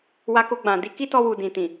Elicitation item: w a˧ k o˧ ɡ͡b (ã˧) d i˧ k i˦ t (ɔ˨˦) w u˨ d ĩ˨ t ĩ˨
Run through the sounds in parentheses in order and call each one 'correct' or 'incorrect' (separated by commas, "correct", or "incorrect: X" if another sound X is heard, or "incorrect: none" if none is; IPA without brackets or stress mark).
incorrect: ã˨, incorrect: ɔ˧